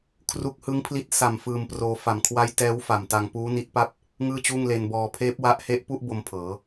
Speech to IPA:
kʰ r u˦˥ k̚ h ɯ˦˥ ŋ pʰ l i˦˥ t̚ s a˨˩ m f ɯː˧ m p r oː˧ f a˨˩ m kʰ w a˦˥ j t ɛː˦˥ w f a˨˩ m t a˧ ŋ p uː˦˥ n i˦˥ t̚ p a˥˩ p̚ | ŋ ɯː˥˩ t͡ɕ uː˥˩ ŋ l e˧ n b ɔː˧ pʰ eː˦˥ p̚ w a˦˥ ʔ h e˦˥ ʔ p u˥˩ ʔ b o˧ m pʰ ɤː˩˦

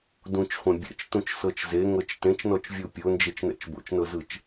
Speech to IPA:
d ũ t͡ʃ χʷ ẽ bʲ ɛ̰ t͡ʃ t ũ t͡ʃ s ɤ t͡ʃ z e ŋ ɤ t͡ʃ t ẽ t͡ʃ n ɔ t͡ʃ vʲ u pʲ o n d͡ʒ e t͡ʃ n ɛ̰ t͡ʃ b o̰ t͡ʃ n ɤ z ɯ t͡ʃ

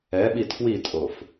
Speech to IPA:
ɛ ɓ i tʰ w i tʼ o f

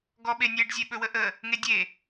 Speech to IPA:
ɡ ɔ ɓ e nʲ e ɖ zʲ e ɓ ɵ w ə ʔ ə | ŋ e dʲ e

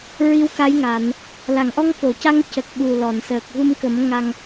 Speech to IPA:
ɹ i˧˥ w k a˧˥ j ŋ aː˨˩˨ n | l a˨˩˨ ŋ ʔ ɔ˧ ŋ f o˨˩˨ c a˧ ŋ c ə˨˩ k̚ ɓ u˨˩ l ɔ˨˩˨ n s əː˨˩ k̚ ɣ u˧ m k ə˨˩˦ m ŋ a˧ ŋ

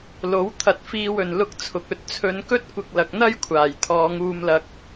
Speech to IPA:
l o˨˥ w t̪ʰ ɐ˧ t̚ f iː˧ w ɵ˨˩ n l ʊ˧ k̚ t͡sʰ ʊ˨ k̚ ɵ˧ t̚ t͡sʰ ɵ˨˧ n k ɵ˥ t̚ kʷ ɪ˧ k̚ l ɐ˨ k̚ n̪ ɐ˥ j kʷʰ aː˨˩ j t̪ʰ ɔː˨˧ ŋ uː˧ m l ɐ˥ k̚

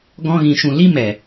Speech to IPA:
ɡ ɔ̃˧ ɣ ĩ˨ ʃ ũ˨ l i˦ m ɛ˨

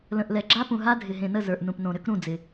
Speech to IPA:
l ə̃˨ ʔ l ɛ˨ ɡ͡ǁ a˦ p ũ˨ ɦ a˦ dʱ ɪ˨ ɦ ẽ˨ n ə˥˩ z ə˞˨ ʔ n ũ˨ p n õ˨ ɾ ʏ˦ k ɾ ũ˥˩ d͡z ɪ˨

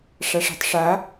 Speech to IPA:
ʂ a ʂ e̤ tˤ ʂ a

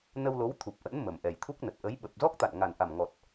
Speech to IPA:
n ə˧ w l o˨˦ w t̪ʰ u˨˩ p̚ ʔ ə̰˧˥ n m ə˨˩ m ʔ ɛ˨˩ j t̪ʰ u˦˥ k̚ n ə˨˩ t̚ ʔ ə˨˦ j ɓ ə˨˩ p̚ z ɔ˦˥ k̚ t̪ a̰˧˨ n ŋ a˨˩ n ʔ a˨˩ m ŋ ɔ˨˩ t̚

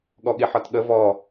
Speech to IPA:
ɠ ɔ ɠ i ħ ɒ t ɠ ə v ɔ

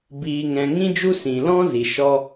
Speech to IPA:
b iː˨ ŋ ɛ̃˨ ŋ ĩ˧ d͡ʒ u˧ s ĩ˨ l ɔ̃˦ z i˨ ʃ ɔ˧

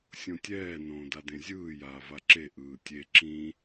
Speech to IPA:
sʲ õ tʲ ɛː n õː d a d ẽ zʲ ɯː j aː v a ǁ e ʔ ɯː tʲ e ǁ ĩ

